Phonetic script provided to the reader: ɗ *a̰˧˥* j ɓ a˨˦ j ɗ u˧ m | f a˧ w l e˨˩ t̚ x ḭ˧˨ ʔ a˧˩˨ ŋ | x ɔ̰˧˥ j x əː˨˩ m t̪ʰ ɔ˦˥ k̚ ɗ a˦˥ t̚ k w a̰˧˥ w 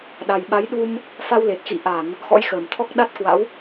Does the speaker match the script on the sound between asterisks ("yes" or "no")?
no